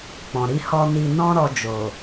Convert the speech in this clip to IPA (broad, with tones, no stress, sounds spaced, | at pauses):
k͡p ɔ̃˨ ɾ i˧ h ɔ˧ n i˧ n ɔ̃˦ ɾ ɔ˧ d͡ʒ o˨